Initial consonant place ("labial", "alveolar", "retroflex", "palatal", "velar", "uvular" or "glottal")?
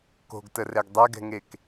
velar